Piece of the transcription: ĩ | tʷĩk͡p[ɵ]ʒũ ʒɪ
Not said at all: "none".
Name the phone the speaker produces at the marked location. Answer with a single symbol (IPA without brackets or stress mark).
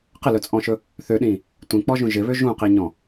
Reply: ɔ